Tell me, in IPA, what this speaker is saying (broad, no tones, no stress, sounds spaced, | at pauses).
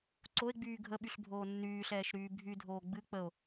ǀ o e̯ ɡ͡b yː ɡʱ ə ɓ y ɬ bʱ oː nː yː ɬ ɛː ʃ ɾ yː bʱ y dʱ oː ɡ͡b ɨ k͡p ə o̯